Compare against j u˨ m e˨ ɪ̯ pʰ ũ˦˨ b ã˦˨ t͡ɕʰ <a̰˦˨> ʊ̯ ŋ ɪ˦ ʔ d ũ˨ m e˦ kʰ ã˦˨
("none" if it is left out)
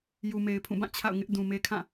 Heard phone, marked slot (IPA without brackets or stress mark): a̰˦˨